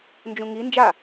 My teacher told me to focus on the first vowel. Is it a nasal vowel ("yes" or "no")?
yes